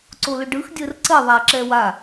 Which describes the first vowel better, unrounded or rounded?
rounded